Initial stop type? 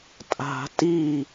ejective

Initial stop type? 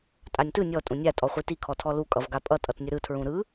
ejective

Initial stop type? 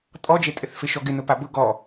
ejective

